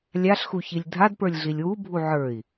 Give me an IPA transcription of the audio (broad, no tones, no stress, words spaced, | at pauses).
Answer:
lʲaɬxuçilʲ dʱadpə˞lʲɮilʲ wubʱu ʕə˞i̯